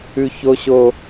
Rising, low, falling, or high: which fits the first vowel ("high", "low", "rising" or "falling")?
high